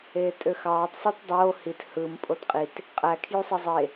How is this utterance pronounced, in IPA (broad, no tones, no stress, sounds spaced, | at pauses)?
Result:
eː tʼ ø x ɑː tˤ sˤ u t dˤ oː h i t h ɯ m pʼ o t qʼ i t | qʼ æ kʰ j u sˤ e zˤ e